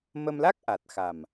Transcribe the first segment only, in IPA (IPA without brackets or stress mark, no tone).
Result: m